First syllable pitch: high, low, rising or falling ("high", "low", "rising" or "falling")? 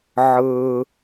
high